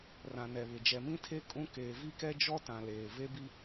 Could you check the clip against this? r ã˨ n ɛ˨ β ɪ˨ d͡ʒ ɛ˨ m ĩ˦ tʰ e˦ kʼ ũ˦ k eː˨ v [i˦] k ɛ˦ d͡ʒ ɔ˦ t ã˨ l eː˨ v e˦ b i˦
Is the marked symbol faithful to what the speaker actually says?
yes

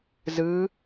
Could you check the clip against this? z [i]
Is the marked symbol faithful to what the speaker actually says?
no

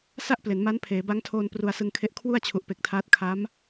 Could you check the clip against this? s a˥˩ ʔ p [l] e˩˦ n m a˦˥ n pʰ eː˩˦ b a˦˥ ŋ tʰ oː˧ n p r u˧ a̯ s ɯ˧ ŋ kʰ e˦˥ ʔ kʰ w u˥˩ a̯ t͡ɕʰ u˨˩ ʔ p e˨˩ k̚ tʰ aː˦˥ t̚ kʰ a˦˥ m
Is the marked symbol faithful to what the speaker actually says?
yes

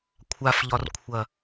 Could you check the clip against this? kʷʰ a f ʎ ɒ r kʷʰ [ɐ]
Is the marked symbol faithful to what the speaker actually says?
yes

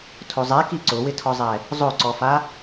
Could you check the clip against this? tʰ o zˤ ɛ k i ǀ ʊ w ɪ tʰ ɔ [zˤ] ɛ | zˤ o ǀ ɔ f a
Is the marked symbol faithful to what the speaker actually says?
yes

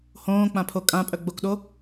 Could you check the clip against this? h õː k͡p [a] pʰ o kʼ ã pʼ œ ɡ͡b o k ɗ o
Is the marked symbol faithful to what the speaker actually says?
no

